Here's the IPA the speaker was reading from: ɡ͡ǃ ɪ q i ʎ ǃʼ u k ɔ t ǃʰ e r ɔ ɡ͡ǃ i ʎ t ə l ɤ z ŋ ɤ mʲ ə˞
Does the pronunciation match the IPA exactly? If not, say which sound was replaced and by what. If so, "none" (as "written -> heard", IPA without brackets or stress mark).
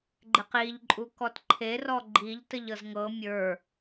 l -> ʎ